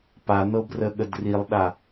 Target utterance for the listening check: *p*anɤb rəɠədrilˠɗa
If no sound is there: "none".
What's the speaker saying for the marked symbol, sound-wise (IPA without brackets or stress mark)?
p